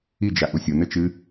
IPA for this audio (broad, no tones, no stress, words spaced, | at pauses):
id͡ʒa ʔusʲonɘ t͡ʃɨ